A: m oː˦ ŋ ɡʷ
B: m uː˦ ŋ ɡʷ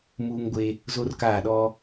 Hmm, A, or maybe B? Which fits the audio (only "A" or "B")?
B